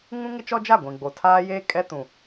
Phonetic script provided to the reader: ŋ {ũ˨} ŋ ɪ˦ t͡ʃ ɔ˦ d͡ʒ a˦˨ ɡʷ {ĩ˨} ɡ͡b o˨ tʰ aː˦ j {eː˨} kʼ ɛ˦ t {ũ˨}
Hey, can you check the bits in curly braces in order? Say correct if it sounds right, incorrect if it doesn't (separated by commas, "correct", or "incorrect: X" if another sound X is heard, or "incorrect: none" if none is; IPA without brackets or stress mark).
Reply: incorrect: ũ˦, correct, incorrect: eː˦, correct